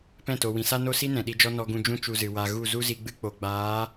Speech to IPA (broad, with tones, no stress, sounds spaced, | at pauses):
p ɛ̃˦˨ t o˨ w ĩ˨ s a˦ n o˦ s i˦ n ɛ̃˨ ɗ i˧ d͡ʒ ɔ˦ n ɔ˧ ɡ ũ˧ d͡ʒ ũ˦ t͡ʃ u˧ z ɨ˨ w a˨ ɣ u˦˨ z u˦ z i˧ ɡ͡b ɨ˦ k͡p o˨ ɡ͡b aː˨˦